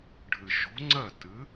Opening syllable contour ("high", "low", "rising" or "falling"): low